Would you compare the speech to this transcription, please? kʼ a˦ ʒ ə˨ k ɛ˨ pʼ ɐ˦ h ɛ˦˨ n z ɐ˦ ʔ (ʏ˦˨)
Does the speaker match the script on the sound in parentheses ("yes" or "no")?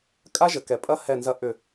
yes